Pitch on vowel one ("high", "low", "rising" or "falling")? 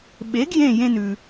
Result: rising